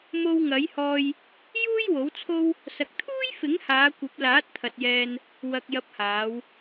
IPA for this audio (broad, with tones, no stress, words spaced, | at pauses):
mo˧wŋɐ˨˥jhɔː˧j | juː˥jwo˨˥wt͡sʰo˥w | sɐ˨k̚t̪ʰuː˥jfɪ˨˥ŋhaː˨˧ kʷɐ˨˥p̚ laː˨˥t̚t̪ʰɐ˨t̚jɛː˧n | wɐ˨k̚jɐ˨˥p̚haː˨˧w